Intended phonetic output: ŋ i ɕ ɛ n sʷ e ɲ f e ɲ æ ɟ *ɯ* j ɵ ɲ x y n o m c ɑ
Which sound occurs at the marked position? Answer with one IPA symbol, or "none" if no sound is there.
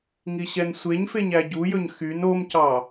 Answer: u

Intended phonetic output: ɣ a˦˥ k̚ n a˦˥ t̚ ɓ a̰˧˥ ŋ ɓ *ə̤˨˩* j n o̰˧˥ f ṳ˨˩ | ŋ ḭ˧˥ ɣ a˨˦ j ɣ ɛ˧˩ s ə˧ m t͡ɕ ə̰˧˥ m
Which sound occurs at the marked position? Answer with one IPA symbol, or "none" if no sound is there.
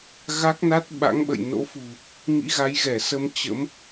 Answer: ə̰˧˨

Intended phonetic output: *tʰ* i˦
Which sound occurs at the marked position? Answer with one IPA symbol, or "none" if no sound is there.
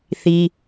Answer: θ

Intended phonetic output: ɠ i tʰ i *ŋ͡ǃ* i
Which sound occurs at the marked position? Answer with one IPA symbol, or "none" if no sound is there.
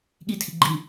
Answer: ɡ͡ǃ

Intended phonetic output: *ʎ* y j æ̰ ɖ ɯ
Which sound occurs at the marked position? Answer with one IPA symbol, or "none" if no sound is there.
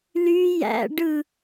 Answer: l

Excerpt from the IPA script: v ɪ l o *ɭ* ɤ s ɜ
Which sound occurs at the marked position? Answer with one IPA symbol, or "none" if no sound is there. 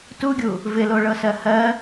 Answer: ɭ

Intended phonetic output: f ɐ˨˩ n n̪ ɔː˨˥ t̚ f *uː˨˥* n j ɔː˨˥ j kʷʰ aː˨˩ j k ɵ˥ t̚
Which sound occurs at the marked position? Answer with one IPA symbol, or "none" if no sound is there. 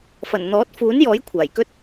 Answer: uː˨˥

